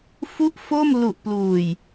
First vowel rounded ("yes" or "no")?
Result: yes